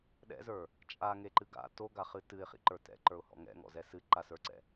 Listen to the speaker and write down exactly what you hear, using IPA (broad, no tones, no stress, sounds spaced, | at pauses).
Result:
ɗ ɛ̰ z ə˞ | t͡ʃʼ a ŋ e ǃ ɨ ɡ a̰ t o ɡ a χ ɨ t ɨ ɪ̯ χ ḭ ǃ ə˞ t ɛ̰ ǃ ə˞ ʊ̯ h ɔ̰ ŋ ɛ̰ ŋ ɔ̰ z ɛ s ɨ ǃ a s ə˞ ǀ ɛ̰